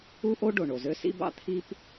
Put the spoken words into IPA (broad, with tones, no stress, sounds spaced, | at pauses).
u˥ ʔ o˥ ɖ o˩ ɳ o˩ z ø˥ s ḭ˥ b ɑ̰˥ t̪ʰ i˥ p